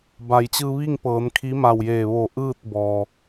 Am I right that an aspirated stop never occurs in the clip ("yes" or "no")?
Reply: no